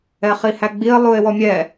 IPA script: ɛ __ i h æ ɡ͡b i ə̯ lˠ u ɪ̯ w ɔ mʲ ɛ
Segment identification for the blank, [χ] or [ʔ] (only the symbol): χ